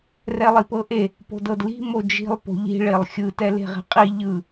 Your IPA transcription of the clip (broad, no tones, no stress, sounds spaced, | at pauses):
r ɛ lˠ i p ɤ ʔ e | p o̤ d ɤ d l i̤ m o d͡ʒ i̤ lˠ p o̤ ʎ i̤ ɭ e lˠ xʲ ɯ t ɛ l e̤ ʁ e̤ qʼ i ʎ ɯ